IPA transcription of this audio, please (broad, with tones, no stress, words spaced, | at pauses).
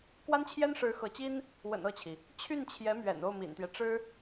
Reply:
kwa˥nt͡ɕʰjɛ˥nʂɻ̩˧˥ xɤ˧˥t͡ɕi˥n | wə̰˨˩n ɤ˥˩t͡ɕʰi˩ | t͡ɕʰy˥˩nt͡ɕʰjɛ˧˥mɥɛ̰˨˩n o˥˩ʊ̯mḭ˨˩nt̪jɛ˦ ʈ͡ʂɻ̩˥